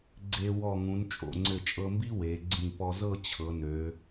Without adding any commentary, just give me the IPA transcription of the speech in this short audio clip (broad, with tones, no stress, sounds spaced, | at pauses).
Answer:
ɡ͡ǀ e˧ w ɔ˧˩ ŋ ũ˩˧ n t͡ʃʼ o̰˧˩ ŋ͡ǀ ɘ˧˩ t͡ʃʼ ɤ˧ m b i˥ w e˩˧ ɡ͡ǀ ĩ˧˩ p ɔ˧ z ɤ˥˧ t͡ɕʰ ɤ˩˧ n ø˩˧